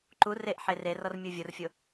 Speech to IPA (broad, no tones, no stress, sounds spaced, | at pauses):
ǃ u r e ʔ ħ e r e r ɔ r mʲ u vʲ o r fʲ o